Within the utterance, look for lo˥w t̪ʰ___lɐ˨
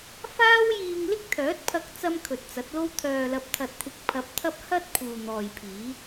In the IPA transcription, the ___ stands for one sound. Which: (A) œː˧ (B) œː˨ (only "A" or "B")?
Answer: B